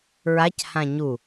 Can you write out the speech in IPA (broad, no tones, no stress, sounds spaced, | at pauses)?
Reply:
ɹ a c h ã ɲ u